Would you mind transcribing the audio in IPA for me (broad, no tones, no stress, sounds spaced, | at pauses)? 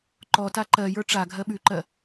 ǃ ɔ t a ǃ ɜ j ə˞ ʈ͡ʂ a ɡʱ ɜ ɓ ʉ ǃ ɜ